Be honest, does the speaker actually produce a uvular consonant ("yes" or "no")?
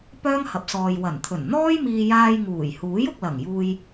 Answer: no